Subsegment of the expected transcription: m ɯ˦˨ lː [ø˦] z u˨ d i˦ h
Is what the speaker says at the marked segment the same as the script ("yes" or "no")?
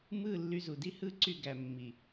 no